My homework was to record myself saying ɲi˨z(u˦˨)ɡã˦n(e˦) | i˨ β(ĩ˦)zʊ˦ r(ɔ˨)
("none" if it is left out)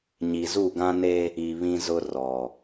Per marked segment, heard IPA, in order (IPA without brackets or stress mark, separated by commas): u˦˨, e˦, ĩ˦, ɔ˨